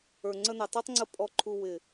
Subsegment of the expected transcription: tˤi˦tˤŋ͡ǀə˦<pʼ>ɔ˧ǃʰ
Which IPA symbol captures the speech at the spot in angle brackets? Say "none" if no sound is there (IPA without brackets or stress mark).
pʼ